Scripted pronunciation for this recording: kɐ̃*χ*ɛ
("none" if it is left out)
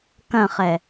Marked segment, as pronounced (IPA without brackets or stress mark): χ